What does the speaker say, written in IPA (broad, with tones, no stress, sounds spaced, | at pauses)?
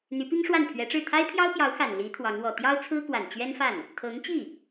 n̪ y˧˥ p i˥ ŋ ʂ w a˥˩ n pʰ ɥ ɛ˧˥ ʈ͡ʂ ɻ̩˥˩ t̪ʰ a˥ ɪ̯ pʰ j ɑ˥ ʊ̯ p j ɑ˧˥ ʊ̯ x a˨˩ n l i˧˥ t̪ʰ w ɑ˧˥ ŋ w ɔ˨˩ t̪ j ɑ˥ ʊ̯ t͡sʰ ɹ̩˥ k w a˨˩ n t͡ɕ ɥ ɛ˥ n f a˥˩ n | t̪ʰ ɤ˧˥ ŋ t͡ɕ i˥˩